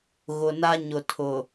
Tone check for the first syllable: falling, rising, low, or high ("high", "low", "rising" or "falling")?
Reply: low